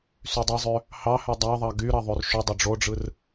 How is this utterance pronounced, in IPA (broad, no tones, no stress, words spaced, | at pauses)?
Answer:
sydˤezˤø | hɑhø dˤɑðˤɑ ɡy ɾɑðˤørʃydˤø ɖ͡ʐoɖ͡ʐɯr